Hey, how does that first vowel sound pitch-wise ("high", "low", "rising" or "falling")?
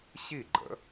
falling